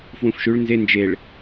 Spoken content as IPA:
fwũfʃʉɭ nze nd͡ʒeɭ

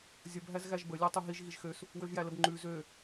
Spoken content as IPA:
zʲəb ɦæzɣæʒbə lʲotˤøɦiʒ ɣiʒxøs | wøʒjæləbŋ͡ǃʉ zø

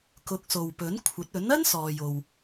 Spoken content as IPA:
kʊ˨˥k̚so˨wpɵ˨˥nkʷʰɐ˨˥t̚ ɵ˨˥nɐ˥nsɔː˨jo˨w

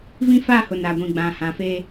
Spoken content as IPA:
vĩ˦ fa˦˨hʊ˨ na˨ɡʷĩ˨ɡ͡bã˨ hã˨fe˦

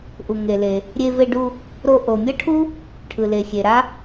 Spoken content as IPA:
ʔu˩ŋe˩le˩ | ɾʲe˧ve˧ɖu˧ | ɾo˧ ʔo˩mʲʌ˥ʈʰu˥ | ʈʰɯ˩le˩xʲe˩ɾa˥

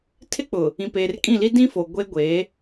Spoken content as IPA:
tʰɪ˦k͡pʊ˨ | ĩ˨peː˨rkʼĩ˦˨li˦ dĩ˦fo˨ ɡʷe˦ɡʷe˨˦

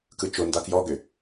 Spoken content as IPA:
kɯt͡ʃonda kjɔɡʏ

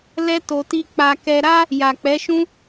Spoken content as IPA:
lɛ˦ to˧ti˦ k͡pa˧kɛ˧ ɾa˦ | ja˨k͡pɛ˨˦ʃũ˦

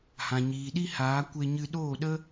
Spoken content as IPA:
hã˨ɲiː˨ɗi˦haː˨˦ kʷe˧ɲɨ˧ ɗoː˦˨ɗə˦

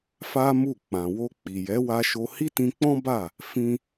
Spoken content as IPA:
fa˦mu˦˨ k͡pã˨wo˧ k͡pi˨jɛ˨˦ wa˧ʃo˧ hi˦tĩ˧k͡pɔ̃˦ba˦˨ | fĩ˦

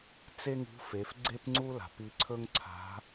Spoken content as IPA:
t͡se˥ŋṳ˧˥ fe˩˧f ɡ͡ǀe˥pŋ͡ǀu˥la̤˩p i˧ǀʰɵ˥ŋǀʰa̤˧˥

